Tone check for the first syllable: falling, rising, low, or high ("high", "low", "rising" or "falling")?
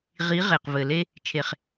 rising